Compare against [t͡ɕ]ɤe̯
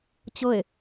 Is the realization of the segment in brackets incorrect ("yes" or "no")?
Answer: no